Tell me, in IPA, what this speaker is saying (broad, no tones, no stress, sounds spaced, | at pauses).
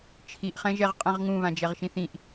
t͡ʃʰ i ʔ χ ɛ̃ ʒ ɛ ʁ qʼ ɛ̃ ʁ ŋ ũ β ã d͡ʒ ɛ ʁ ʃ ĩ θ ĩ ʔ